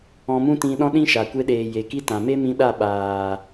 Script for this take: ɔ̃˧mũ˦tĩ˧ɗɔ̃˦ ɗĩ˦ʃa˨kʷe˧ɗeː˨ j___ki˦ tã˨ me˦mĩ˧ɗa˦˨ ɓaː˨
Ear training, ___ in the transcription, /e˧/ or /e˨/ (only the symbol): e˨